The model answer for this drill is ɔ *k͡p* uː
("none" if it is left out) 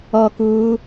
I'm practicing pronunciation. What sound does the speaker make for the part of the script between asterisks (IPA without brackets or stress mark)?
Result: k